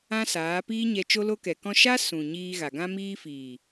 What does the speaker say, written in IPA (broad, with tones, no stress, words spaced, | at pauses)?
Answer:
ã˦saː˨˦ piː˦ɲɛ˧ t͡ʃo˧lo˧kɛ˨kɔ̃˧ ʃa˦ sũ˨ ɲiː˧ɣa˨ɡã˦ miː˧fiː˨